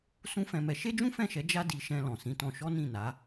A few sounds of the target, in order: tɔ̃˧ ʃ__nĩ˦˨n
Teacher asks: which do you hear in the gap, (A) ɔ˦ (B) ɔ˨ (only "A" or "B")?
A